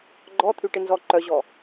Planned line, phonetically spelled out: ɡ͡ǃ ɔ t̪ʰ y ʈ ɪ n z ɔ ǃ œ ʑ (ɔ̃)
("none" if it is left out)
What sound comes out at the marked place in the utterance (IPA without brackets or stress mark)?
ɔ